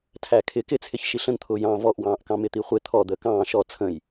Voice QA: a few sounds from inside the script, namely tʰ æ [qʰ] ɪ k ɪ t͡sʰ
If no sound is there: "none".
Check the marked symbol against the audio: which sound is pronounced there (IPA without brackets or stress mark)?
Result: kʰ